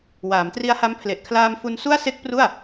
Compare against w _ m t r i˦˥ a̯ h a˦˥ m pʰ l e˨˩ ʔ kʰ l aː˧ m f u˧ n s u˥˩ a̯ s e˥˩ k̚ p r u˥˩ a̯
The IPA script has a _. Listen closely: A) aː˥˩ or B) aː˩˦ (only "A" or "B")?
B